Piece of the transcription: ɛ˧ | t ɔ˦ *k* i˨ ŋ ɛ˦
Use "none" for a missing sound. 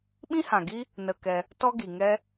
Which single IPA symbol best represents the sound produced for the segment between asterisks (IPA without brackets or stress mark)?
ɡ